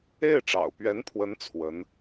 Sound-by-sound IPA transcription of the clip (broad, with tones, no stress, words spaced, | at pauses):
e˥˩ɪ̯ʈ͡ʂɑ̰˨˩ʊ̯pɥɛ˧˥npʰwə˧˥n t͡sʰwə˧˥n